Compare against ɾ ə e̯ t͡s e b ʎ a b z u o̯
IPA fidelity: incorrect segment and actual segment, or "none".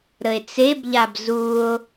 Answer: none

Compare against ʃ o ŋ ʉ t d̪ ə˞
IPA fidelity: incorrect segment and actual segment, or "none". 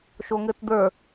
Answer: ʉ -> ɘ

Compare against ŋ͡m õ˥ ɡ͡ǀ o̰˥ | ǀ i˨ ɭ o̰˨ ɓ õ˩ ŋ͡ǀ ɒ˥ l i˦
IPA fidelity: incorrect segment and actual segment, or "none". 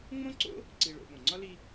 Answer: ɡ͡ǀ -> ǀ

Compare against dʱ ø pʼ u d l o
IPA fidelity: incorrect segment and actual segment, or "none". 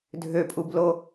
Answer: d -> b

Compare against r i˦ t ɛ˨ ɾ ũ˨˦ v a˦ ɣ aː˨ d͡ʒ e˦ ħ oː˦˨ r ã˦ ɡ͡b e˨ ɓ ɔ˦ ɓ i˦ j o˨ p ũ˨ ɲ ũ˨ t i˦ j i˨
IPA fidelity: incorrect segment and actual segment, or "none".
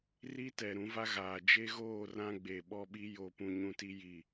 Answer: ħ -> ɣ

